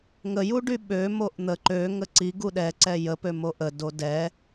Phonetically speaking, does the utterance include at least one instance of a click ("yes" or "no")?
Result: yes